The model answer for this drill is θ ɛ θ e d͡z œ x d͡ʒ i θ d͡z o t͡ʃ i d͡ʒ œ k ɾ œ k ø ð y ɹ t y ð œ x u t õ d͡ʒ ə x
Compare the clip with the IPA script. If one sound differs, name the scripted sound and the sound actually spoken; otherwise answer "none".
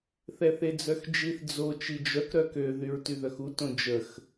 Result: none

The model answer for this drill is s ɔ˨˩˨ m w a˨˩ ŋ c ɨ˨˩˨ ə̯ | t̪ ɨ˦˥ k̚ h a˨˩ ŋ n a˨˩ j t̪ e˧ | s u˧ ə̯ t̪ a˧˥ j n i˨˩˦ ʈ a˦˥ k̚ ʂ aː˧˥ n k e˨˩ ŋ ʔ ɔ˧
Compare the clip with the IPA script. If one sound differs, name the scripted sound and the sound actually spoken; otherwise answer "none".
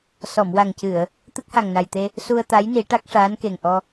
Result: none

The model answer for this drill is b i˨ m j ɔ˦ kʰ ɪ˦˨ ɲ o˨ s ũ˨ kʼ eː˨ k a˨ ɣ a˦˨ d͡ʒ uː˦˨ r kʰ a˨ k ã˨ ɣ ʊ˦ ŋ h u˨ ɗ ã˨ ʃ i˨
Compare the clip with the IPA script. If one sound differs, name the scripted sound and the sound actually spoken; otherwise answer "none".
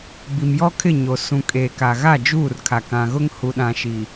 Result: none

